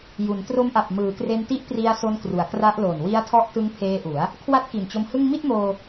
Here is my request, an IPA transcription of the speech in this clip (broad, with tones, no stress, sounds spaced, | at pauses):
j u˩˦ n t r o˦˥ m ʔ a˨˩ p̚ m ɯː˩˦ k r e˧ n t i˦˥ ʔ p r i˧ a̯ s o˦˥ n k r u˩˦ a̯ k r a˦˥ ʔ l o˨˩ n w i˦˥ a̯ tʰ ɔ˦˥ ʔ t ɯ˦˥ ŋ pʰ eː˧ ʔ u˩˦ a̯ | kʰ w a˥˩ t̚ k i˨˩ n t͡ɕ o˧ m h ɯ˥˩ ŋ m i˥˩ t̚ m oː˧